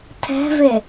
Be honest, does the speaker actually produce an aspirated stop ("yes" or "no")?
yes